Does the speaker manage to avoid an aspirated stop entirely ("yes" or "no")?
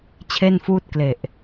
no